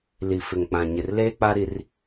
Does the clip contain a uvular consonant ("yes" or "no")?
no